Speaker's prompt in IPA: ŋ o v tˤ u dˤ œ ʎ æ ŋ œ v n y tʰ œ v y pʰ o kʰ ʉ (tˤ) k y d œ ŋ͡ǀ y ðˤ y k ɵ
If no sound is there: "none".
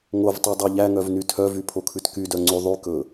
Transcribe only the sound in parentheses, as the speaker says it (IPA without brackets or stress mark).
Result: t